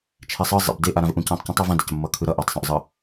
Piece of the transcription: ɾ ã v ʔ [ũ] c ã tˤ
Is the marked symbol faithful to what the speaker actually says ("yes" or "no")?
yes